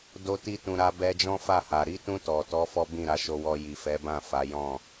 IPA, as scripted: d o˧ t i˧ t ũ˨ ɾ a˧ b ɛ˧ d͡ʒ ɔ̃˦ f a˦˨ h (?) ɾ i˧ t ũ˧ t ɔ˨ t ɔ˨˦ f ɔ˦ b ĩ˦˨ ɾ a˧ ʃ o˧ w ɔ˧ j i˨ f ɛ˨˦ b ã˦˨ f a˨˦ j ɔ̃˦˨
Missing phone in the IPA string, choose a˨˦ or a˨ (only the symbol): a˨